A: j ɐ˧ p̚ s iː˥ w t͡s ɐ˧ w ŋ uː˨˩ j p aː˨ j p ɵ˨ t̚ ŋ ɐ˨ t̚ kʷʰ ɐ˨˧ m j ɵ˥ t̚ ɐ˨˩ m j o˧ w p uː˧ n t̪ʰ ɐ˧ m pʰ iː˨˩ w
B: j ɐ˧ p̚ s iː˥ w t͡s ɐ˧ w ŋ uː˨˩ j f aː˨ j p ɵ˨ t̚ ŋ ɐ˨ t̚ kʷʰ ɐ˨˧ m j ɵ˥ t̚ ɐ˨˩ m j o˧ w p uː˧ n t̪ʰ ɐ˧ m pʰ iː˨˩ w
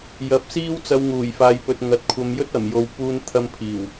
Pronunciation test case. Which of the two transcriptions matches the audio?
B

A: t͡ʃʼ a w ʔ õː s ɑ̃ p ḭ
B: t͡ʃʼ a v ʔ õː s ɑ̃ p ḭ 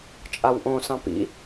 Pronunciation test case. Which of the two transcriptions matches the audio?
A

